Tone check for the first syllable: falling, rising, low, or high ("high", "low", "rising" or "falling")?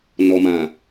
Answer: low